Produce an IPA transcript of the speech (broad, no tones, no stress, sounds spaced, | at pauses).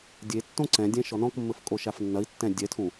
dʲ e tː õ ǀ ɛ̃ dʲ ɛ̃ ʃ ɔ n ɔ̃ k mː ɘ f kʼ o ʃ a f nː ɐ i̯ tː ɛ̃ dʲ ɛ tʰ ũ